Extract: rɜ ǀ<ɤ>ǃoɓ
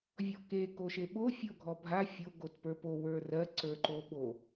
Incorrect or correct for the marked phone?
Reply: incorrect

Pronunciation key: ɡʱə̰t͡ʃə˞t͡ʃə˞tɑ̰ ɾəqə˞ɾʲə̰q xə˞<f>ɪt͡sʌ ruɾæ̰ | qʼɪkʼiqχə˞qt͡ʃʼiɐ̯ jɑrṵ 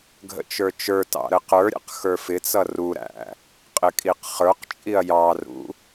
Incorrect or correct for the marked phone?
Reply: correct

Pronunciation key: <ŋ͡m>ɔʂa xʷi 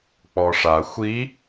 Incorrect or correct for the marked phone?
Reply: incorrect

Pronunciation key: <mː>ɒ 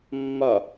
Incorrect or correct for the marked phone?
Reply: correct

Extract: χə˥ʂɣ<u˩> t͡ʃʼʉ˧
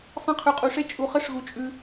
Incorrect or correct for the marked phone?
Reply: incorrect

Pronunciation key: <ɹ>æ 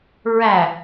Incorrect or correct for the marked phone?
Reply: correct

